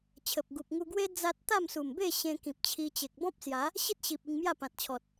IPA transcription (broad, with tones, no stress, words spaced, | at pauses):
t͡ɕʰə˨p̚ɡu˨p̚ ŋu˧ɡwe˦ d͡za˦t̚ t̪a˥˧msu˨˩mbe˥˧ ɕẽ˧kĩ˨p̚t͡ɕʰi˧ t͡ɕe˨k̚bɔ̃˦p̚sja˨˦ | ɕi˦t̚ɕi˨p̚ i˧ŋmja˥˧pã˨t̚t͡ɕʰɔ˨t̚